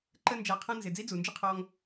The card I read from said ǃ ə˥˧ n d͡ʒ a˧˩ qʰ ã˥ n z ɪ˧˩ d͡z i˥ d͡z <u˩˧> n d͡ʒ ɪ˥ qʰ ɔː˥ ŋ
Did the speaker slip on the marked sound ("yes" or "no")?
no